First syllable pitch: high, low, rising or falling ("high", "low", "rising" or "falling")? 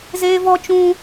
high